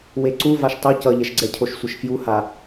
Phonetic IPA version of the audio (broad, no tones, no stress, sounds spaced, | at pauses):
w e ǀ u v a ʃ tˤ u c ʌ ʎ ɛ ʃ ɡ͡ǀ ɛ cʰ o ʃ sʷ ʌ ʃ f j u h a